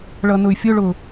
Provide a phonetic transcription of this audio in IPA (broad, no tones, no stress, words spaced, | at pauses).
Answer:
ɭʌnʊy̯fʲʊɭʊ